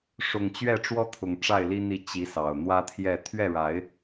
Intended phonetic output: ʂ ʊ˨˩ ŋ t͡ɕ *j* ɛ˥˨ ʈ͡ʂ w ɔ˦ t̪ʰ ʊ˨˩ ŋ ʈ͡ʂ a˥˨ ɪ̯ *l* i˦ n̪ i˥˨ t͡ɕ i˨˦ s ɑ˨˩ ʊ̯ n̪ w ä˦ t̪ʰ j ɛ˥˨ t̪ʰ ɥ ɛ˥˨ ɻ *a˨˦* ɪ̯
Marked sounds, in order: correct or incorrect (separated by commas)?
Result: incorrect, correct, correct